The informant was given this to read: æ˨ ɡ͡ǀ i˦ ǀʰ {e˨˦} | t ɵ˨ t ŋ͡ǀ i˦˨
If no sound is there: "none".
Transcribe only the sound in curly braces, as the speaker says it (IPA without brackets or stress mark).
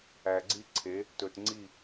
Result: e˨˦